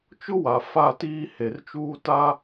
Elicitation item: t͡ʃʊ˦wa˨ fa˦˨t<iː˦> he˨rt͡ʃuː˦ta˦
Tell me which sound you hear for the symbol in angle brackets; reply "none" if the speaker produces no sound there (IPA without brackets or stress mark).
iː˦